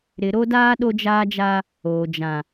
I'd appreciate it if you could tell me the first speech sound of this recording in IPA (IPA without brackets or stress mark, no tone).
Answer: ɾ